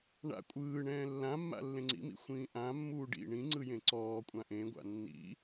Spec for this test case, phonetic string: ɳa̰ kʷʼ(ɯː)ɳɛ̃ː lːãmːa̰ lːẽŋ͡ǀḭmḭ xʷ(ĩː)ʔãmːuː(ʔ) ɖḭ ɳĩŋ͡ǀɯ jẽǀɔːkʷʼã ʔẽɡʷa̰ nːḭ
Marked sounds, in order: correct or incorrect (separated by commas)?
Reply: correct, correct, incorrect